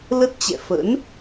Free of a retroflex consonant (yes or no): yes